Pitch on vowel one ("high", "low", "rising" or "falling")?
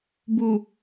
low